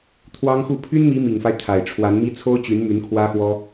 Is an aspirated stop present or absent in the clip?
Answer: present